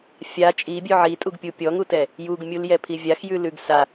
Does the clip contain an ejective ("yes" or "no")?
yes